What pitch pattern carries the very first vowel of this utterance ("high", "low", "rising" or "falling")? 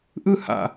falling